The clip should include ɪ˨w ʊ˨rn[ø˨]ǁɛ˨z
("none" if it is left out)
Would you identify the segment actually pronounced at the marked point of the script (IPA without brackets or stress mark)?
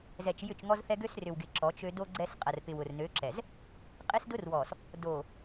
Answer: ø˨˦